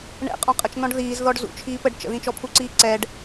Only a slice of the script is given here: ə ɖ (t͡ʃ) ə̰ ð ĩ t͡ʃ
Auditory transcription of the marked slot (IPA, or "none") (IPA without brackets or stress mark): t͡ʃ